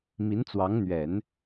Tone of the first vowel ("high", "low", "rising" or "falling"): rising